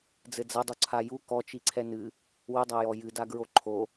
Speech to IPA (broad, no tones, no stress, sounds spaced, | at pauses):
d͡z ɘ d͡z ɐ dˤ u ǀʰ a j u k ɔ t͡ʃ i ǀʰ ɛ n ɨ | w ɘ dˤ a j ɔ j ɨ d a ɡ ɹ o ǃʰ o